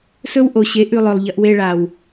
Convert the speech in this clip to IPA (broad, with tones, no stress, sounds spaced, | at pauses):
s ɵ˦ w ʔ o˨ ɕ e˨˦ ʔ ʉ˧ lˠ ɵ˨ lˠ ʎ ɐ˧ ʔ w e˧ ɭ a˨ w